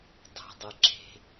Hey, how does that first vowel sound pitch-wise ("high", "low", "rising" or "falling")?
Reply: low